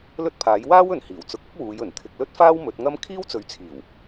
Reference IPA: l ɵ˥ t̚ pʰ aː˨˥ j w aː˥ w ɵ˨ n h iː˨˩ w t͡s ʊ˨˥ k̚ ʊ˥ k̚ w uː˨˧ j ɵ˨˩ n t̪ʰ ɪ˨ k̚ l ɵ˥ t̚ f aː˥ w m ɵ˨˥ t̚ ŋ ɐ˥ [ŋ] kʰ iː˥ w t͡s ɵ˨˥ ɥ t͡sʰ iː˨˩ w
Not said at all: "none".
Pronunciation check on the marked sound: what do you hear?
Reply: m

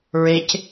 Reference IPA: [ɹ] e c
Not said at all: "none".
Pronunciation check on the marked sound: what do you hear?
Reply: ɹ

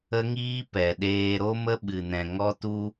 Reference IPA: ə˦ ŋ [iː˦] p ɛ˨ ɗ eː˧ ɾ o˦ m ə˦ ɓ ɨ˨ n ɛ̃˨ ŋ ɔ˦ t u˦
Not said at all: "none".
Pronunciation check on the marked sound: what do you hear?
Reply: iː˦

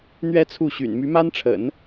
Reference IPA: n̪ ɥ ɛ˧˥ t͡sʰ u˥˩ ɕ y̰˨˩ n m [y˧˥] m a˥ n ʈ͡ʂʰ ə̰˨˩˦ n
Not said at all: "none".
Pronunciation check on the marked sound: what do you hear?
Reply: y˧˥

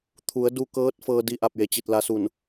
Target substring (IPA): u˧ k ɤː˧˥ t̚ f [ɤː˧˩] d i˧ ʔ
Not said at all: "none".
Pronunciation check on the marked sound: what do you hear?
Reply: ɤː˧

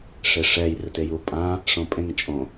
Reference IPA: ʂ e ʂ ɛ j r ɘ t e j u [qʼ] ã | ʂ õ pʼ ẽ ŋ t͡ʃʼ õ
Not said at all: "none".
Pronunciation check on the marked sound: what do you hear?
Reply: pʼ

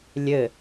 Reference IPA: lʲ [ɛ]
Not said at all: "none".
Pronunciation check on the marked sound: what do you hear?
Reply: ɘ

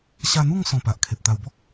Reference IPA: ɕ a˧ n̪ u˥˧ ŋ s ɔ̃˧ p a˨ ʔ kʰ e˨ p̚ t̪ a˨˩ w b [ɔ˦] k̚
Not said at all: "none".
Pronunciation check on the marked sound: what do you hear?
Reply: ɔ˦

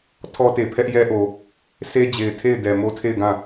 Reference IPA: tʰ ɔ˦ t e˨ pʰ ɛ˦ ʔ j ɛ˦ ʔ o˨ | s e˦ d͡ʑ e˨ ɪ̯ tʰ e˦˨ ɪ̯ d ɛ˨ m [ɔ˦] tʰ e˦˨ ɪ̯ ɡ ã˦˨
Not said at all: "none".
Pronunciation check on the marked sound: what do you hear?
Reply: o˦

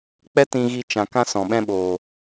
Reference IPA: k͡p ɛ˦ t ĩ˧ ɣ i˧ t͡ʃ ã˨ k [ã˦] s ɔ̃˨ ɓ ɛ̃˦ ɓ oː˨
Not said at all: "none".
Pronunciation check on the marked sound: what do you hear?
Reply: ã˦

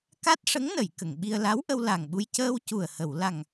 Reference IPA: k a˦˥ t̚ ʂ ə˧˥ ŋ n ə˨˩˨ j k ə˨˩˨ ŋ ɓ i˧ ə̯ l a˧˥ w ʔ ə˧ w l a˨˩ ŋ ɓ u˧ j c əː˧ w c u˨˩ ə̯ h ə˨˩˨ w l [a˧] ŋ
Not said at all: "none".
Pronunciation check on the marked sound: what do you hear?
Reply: a˨˩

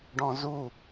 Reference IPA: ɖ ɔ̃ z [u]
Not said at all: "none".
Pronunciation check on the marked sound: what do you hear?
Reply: u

